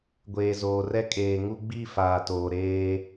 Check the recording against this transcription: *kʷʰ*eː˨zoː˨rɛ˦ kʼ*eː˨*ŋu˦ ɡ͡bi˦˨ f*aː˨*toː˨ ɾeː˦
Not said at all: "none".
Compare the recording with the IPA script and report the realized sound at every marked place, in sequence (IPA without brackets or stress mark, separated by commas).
ɡʷ, eː˨, aː˨